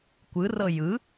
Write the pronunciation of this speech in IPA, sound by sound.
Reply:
kʷ ɯ r ɤ j ɯ

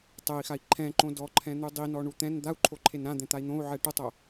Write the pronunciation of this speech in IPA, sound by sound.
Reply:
tˤ ɛ i̯ x a i̯ ǃʰ ɛ̃ ǃ õ d ɔ ǃʰ ɛ̃ n̪ u dˤ i n ɔ ɳ u t̪ ɛ̃ n d̪ a u̯ ǃʰ o ǃʰ e n ɾ ã d̪ ɛ̃ t̪ a i̯ n̪ õ u̯ ʕ ɛ ʈ ʊ tˤ o

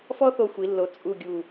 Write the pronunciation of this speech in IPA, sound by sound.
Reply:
f ɔ˥ θ o˧ xʷ i˩˧ lː o˨˩ t͡sʼ u˨˩ ɡʲ u˨˩

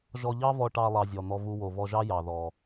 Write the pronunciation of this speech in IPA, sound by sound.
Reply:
ʒ ɔ˧ ʎ ɑ˥ v ɔ˧ ʈ ɑ˧ lˠ ɑ˧ zʲ ɔ˩ n̪ ɔ˧ v u˧ w o˩ v ɔ˧ ʒ ɑ˥ j ɑ˩ ð ɔ˩

